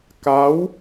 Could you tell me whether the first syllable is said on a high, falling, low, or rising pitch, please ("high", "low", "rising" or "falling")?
rising